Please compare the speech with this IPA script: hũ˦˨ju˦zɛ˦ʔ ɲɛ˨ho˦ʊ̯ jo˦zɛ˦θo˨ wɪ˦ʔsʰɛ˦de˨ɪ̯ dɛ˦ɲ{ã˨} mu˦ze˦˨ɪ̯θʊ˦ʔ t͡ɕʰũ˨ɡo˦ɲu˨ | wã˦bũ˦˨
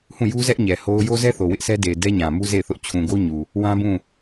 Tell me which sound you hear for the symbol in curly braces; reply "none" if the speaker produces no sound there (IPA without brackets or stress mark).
ã˨